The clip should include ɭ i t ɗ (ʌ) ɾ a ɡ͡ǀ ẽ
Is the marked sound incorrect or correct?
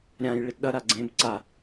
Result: correct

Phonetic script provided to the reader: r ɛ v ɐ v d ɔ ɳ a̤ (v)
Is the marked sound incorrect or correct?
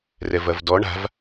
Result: correct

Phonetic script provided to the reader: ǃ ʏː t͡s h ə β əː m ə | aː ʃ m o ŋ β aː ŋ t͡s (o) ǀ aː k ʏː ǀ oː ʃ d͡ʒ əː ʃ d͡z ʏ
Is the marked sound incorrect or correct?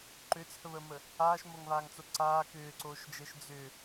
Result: correct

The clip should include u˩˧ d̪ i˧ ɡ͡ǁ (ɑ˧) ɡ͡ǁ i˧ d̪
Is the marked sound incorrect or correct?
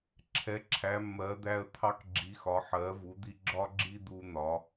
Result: incorrect: ɒ˧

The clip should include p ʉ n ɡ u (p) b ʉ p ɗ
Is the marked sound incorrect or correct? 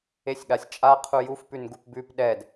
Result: correct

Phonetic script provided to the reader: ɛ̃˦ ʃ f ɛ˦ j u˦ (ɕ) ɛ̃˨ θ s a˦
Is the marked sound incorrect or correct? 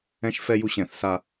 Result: correct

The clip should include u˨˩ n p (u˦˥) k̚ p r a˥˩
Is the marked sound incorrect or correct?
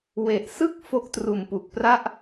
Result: incorrect: u˨˩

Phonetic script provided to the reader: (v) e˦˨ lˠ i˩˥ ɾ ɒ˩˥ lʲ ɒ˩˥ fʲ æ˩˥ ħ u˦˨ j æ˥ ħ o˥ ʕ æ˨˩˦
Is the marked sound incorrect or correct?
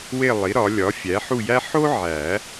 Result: incorrect: w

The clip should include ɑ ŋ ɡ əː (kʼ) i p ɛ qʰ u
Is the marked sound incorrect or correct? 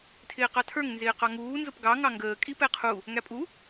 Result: correct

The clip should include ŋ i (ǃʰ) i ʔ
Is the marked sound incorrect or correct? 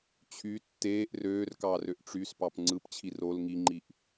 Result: incorrect: ŋ͡ǃ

